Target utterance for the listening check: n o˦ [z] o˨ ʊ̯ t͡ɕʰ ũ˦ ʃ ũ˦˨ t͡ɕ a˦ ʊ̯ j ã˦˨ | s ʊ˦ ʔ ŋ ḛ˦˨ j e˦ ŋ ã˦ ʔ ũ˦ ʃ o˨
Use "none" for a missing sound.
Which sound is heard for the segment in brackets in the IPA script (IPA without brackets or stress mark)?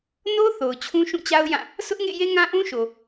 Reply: θ